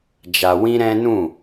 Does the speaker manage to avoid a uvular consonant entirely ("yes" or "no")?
yes